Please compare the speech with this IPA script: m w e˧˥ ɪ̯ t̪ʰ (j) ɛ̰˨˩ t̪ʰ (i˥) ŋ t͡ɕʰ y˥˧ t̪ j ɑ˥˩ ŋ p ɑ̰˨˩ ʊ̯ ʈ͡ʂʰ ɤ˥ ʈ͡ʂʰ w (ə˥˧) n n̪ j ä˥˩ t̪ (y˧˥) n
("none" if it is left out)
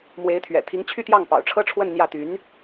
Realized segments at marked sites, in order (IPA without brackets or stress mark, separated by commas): ɥ, i˧˥, ə˥˧, y˧˥